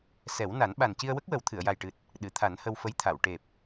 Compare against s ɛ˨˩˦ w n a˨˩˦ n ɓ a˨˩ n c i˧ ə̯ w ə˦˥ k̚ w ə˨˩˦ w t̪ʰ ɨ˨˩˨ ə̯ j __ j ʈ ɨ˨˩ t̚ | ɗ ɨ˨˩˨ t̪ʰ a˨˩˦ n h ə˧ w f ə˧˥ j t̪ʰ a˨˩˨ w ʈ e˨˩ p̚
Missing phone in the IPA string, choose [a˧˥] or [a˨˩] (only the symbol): a˨˩